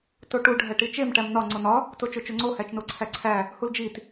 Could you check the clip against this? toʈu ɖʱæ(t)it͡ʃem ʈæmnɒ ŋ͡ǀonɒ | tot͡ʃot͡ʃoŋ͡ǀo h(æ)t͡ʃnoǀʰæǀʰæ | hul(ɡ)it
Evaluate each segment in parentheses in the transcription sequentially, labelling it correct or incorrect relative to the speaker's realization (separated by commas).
incorrect, correct, incorrect